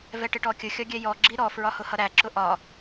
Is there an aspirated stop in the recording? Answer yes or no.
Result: no